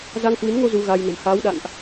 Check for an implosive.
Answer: present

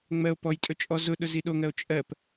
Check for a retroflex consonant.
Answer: absent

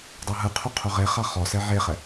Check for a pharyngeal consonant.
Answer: present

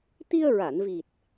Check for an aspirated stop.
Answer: absent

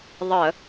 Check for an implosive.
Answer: absent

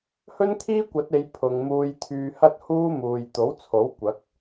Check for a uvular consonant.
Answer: absent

